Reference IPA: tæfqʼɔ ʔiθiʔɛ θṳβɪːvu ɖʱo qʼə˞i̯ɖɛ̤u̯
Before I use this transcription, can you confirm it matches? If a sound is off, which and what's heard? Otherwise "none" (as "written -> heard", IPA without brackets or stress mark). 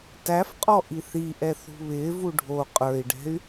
u̯ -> y̯